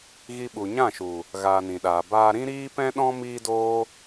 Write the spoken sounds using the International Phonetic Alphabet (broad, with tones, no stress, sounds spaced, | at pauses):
ɣ i˧ ɓ u˨ ɲ ã˦˨ ʃ u˨ | ɣ aː˧ n ĩ˨ ɗ aː˨ b aː˧ ɾ ĩ˦ ɾ iː˦ p ɛ̃˦ ɗ ɔ̃˦ m iː˦ d oː˦